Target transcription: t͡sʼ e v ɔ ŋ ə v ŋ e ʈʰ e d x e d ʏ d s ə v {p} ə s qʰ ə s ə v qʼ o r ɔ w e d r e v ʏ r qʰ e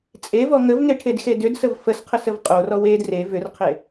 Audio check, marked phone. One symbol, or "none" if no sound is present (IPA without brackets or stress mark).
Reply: f